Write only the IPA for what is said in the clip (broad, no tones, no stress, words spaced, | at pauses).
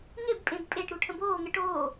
ŋebpʼẽb pʼeʈɾu ʈʰə̃boːŋə ʈoː